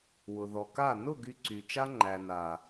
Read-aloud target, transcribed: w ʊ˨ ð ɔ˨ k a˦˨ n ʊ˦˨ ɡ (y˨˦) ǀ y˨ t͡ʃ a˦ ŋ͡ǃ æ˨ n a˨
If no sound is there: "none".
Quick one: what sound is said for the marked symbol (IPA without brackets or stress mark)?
y˧